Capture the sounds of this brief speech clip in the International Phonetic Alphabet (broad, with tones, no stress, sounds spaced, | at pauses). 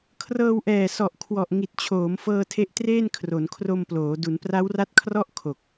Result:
kʰ r ɤː˧ w ʔ ɛː˨˩ s ɔ˨˩ ʔ kʰ w ɔ˨˩ ʔ ŋ i˨˩ t̚ t͡ɕʰ oː˩˦ m f ɤː˧ tʰ e˦˥ ʔ t r eː˥˩ n kʰ r o˩˦ n kʰ r o˧ m p l oː˩˦ d u˩˦ n p r a˦˥ w r a˦˥ t̚ kʰ r ɔ˥˩ ʔ kʰ o˨˩ k̚